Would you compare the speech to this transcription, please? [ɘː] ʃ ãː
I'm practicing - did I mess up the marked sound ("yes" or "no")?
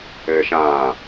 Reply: no